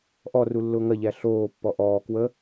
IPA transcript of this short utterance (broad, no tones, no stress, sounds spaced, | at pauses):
ʔ ɔ r u lː ʊː ŋ ɐ ʎ æ ɬ oː pː ɔ ʔ ɔː k w ə